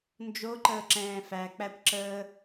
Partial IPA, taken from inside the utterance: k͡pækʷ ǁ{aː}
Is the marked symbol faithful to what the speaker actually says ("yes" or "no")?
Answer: no